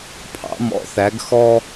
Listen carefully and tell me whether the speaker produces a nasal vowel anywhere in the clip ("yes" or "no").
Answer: no